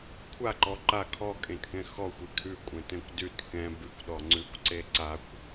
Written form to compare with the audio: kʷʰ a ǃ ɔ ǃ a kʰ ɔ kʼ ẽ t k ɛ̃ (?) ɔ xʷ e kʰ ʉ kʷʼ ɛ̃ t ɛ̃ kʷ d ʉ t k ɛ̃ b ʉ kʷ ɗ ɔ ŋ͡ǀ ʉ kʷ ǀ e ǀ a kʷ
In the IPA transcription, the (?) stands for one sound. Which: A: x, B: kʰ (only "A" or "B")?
A